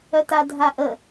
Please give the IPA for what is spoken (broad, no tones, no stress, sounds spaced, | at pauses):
œ t a dʱ a ʔ ə